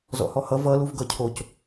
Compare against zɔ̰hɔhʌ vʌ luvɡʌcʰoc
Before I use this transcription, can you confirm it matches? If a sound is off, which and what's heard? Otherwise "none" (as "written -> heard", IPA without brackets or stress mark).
none